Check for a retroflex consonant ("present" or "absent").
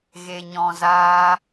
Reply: absent